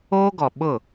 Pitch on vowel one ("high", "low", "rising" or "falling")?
high